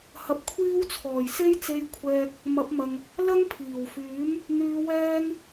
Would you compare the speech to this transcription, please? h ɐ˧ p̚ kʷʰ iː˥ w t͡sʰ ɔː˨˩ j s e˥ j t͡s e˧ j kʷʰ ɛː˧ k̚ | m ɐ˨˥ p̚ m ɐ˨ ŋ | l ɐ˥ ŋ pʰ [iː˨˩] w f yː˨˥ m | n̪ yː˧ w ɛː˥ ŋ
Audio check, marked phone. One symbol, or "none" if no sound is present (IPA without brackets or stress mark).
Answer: iː˨˩